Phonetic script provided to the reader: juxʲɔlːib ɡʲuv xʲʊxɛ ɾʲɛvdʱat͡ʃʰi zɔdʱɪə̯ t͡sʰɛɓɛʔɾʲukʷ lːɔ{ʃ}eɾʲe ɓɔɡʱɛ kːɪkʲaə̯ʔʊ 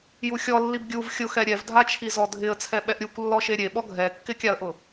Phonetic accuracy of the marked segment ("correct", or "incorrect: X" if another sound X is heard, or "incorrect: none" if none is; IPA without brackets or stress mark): correct